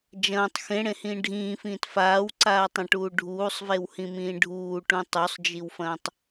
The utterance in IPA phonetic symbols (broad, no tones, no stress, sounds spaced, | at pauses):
d͡ʒ ɐ̃ː tˤ x ẽ ɽ ẽ h ĩː ɖʱ ĩː f ĩː t f aː w ǀ aː tˤ ɐ̃ ʈ uː ɖʱ uː sˤ v e w h ĩ m ĩː ɖʱ uː ʈ ũ tˤ u sˤ d͡ʒ i w f ɐ̃ː tˤ